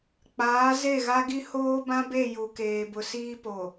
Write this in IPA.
k͡p aː˨˦ z e˦˨ ɣ a˦ ɡ i˦ h oː˦ b ã˦ b e˦˨ j u˨ k eː˨ b ʊ˨ s iː˦ p o˨

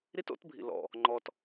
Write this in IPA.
ɾ i˥ t o̰˥ t bʱ ḭ˧ l ɔ̰˧ | ŋ͡ǃ ɔ˧ t

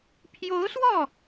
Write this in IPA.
pʰ j o˧˥ ʊ̯ s w ɔ˥˩

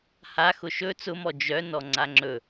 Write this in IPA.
h a x ʊ ʃ ɵ t͡s ʊ m ɔ d͡ʒ œ n ɔ ŋ͡ǀ a ŋ͡ǁ ɵ

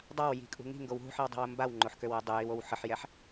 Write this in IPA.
dˤ a w j i̤ kʼ ṳ ŋ i̤ ŋ ɡ o w ɦ ṳ ħ i w dˤ i̤ w ə m b a w ŋ͡ǃ o ħ k ø w ɛ dˤ ə j i w o w ħ ə ħ j ɛ ħ

